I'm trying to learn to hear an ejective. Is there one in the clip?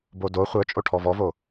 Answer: yes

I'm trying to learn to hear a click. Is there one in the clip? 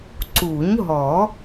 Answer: yes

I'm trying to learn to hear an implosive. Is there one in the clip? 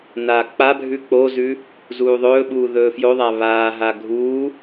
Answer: yes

